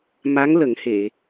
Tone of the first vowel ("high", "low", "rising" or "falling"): rising